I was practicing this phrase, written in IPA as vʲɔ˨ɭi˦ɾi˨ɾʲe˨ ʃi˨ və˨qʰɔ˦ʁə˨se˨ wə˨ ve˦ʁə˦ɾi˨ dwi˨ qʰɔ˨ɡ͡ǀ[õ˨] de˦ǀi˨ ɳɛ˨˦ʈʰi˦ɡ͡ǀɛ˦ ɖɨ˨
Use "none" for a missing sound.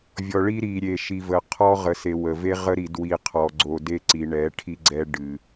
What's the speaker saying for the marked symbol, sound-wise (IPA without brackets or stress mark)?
o˨